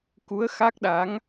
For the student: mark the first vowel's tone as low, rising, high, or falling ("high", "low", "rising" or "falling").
rising